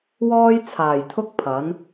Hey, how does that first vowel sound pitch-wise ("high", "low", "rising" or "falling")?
high